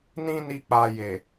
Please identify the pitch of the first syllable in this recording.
high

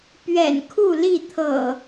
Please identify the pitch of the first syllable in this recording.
low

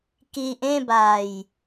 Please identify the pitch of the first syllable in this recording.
low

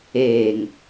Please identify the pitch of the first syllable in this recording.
low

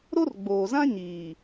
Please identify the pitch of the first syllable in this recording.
high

